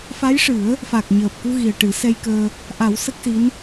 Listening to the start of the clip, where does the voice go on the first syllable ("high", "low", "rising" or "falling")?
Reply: rising